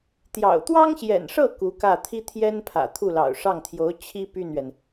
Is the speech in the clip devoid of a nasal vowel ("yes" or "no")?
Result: yes